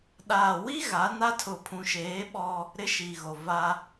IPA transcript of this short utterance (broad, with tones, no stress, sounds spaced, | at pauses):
ɗ aː˨ w i˦ ɣ a˨˦ n a˦ tʰ ʊ˨ pʰ ũ˨ ʃ eː˨˦ ɓ ɔ˦ | ɾ ɪ˦ ʃ i˨ ɣ o˨ v a˦